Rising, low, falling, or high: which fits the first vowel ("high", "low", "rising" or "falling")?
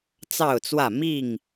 falling